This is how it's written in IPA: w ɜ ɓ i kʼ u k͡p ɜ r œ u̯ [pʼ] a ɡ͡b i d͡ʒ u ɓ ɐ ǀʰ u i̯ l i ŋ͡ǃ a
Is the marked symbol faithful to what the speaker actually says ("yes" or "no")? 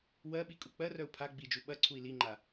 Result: no